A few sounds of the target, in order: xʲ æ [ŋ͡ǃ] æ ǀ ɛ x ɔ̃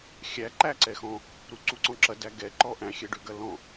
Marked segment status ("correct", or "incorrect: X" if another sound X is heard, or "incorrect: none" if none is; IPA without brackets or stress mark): incorrect: ǃ